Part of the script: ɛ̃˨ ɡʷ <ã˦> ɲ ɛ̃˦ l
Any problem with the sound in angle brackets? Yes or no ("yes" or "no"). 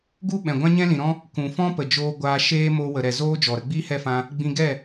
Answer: no